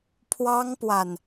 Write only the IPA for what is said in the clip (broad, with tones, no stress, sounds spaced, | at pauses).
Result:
pʰ w ɑ˥ ŋ p w a˨ n